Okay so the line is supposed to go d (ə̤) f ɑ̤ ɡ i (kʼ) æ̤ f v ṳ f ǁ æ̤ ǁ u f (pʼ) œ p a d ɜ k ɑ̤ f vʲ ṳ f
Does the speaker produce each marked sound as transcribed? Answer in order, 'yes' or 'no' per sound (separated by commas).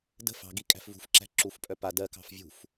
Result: yes, yes, yes